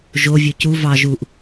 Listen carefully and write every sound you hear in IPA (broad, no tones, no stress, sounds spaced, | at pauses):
ʒ o vʲ ø c u v ɑ ʒ u ʔ